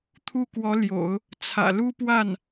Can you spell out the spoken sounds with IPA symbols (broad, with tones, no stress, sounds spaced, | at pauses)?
t̪ʰ u˥˩ k w ɔ˧˥ l j o̰˨˩˦ ʊ̯ | t͡sʰ ä̰˨˩ l u˥ p w a˥˩ n